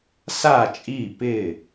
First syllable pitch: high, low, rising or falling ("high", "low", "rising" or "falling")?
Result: falling